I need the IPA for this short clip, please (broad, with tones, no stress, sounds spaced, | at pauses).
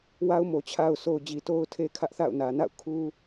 w a˦ ʊ̯ m o˨ t͡ɕʰ a˨ ʊ̯ sʰ o˨ ʊ̯ d͡ʑ i˨ t o˦ ʊ̯ tʰ e˦ kʰ ä˦ ʔ θ a̰˦˨ ʊ̯ n ä˨ n a̰˦˨ ʊ̯ kʰ u˦